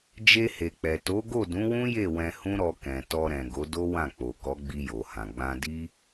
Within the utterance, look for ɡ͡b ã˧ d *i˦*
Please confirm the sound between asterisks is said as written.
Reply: yes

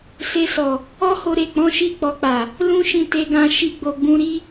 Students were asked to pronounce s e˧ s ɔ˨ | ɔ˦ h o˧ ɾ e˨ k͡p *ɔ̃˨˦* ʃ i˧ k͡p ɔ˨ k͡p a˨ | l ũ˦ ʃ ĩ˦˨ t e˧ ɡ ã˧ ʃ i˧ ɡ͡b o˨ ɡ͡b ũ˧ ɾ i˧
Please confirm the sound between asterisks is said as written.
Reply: yes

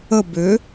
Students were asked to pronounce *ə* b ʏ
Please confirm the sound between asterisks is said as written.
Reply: yes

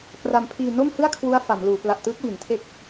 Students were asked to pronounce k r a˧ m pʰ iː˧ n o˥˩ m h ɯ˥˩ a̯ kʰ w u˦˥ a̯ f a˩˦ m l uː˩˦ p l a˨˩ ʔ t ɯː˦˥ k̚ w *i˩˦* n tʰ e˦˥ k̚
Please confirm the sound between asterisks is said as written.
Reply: yes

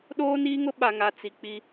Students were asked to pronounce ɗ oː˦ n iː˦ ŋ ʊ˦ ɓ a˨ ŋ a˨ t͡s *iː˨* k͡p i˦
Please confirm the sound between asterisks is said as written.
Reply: no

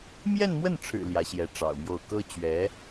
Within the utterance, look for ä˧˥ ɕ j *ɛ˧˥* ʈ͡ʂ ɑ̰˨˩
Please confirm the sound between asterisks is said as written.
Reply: yes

